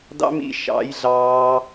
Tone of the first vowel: high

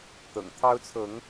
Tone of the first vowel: low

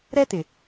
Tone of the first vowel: high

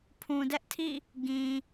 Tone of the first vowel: low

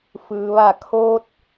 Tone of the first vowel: low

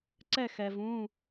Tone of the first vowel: falling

